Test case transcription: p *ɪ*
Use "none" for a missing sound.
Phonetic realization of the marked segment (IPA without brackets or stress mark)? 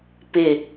ɪ